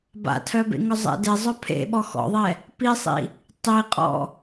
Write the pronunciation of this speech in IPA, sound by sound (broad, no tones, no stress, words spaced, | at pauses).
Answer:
ba̰tʰœbḛŋœ zˤɛ̰dezˤœ pʰḛ ɓɔxɔ̰ðˤɛ | pisˤḭ | tˤiqʼɔ̰